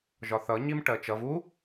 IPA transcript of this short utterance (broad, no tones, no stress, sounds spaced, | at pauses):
ʒ ɒ θ ʌ ɲ i m ʈ ɜ t͡ʃ ʌ v u